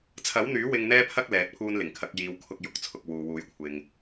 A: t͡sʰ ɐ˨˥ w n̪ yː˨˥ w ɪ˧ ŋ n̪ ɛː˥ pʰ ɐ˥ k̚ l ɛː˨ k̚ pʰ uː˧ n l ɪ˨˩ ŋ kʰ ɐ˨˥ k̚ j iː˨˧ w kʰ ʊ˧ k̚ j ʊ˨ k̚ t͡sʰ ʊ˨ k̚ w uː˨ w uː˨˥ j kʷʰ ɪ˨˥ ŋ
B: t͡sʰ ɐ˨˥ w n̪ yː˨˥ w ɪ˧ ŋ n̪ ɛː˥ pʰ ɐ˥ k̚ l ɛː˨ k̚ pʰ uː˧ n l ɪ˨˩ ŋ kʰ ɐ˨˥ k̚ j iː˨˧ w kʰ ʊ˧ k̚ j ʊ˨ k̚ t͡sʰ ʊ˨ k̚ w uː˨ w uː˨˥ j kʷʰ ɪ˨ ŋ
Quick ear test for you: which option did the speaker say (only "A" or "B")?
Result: B